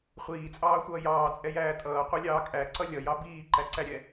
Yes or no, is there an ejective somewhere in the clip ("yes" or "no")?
yes